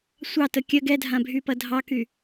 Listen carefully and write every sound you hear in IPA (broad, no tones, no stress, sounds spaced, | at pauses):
sʷ ɑ t ə kʲ ɐ ɡ ɛ dʱ ã bʱ y p ɐ dʱ ɑ k y